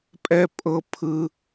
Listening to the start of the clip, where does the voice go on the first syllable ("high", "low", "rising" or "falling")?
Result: high